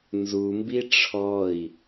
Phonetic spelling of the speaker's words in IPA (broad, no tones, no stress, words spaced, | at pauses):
nzumbi ʈ͡ʂʰɔi̯